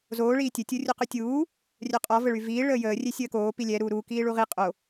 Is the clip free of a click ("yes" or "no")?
yes